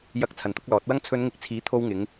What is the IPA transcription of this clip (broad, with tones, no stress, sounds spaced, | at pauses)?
j ɐ˨ k̚ t͡sʰ ɐ˨ n t̪ ʊ˨˥ k̚ l ɔː˨˥ t̚ w ɐ˥ ŋ t͡sʰ ɵ˨˧ n ŋ ɪ˨˥ k̚ t͡sʰ iː˨˥ t̪ʰ o˧ w ŋ ɪ˨˧ ŋ